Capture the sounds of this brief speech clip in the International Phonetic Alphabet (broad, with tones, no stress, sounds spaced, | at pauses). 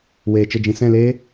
w eː˨ t͡ʃ ə˦˨ d͡ʒ ĩ˧ s ɛ̃˦˨ l eː˦